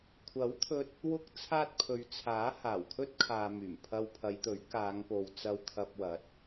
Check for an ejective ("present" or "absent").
absent